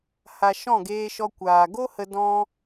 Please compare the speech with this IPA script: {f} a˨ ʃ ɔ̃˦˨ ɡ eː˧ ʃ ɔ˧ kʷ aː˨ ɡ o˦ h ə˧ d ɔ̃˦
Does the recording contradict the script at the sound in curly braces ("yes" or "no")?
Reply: yes